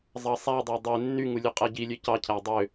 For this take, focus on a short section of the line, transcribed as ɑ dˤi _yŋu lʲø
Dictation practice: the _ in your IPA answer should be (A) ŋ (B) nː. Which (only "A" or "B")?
B